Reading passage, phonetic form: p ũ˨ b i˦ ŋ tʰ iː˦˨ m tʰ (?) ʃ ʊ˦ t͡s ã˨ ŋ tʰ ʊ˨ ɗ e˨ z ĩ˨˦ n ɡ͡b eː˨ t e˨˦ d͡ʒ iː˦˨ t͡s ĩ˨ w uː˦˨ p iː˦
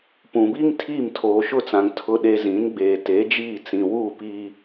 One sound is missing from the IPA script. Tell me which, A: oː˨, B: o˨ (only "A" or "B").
A